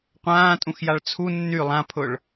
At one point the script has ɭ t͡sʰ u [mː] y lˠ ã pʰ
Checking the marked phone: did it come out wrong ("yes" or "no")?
yes